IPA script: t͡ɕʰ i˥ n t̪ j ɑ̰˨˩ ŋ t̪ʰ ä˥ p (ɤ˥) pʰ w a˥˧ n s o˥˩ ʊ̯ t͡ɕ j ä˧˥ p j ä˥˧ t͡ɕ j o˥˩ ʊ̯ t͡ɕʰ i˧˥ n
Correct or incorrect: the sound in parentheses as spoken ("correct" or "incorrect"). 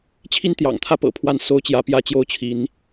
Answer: incorrect